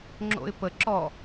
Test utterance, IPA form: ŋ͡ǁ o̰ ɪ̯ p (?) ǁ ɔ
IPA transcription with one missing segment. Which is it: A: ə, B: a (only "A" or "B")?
A